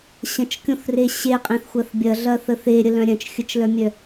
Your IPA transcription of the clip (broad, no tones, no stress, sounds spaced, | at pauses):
ɕ ə̃ t͡ʃ kʲ õ θ r e ɕ e qʼ ẽ θ xʷ ɐ θ bʲ ɐ ɮ ɐ θ ə θ e ɾʲ ə l œ̃ ɾʲ œ̃ t͡ʃ xʲ ə t͡ʃ l œ mʲ œ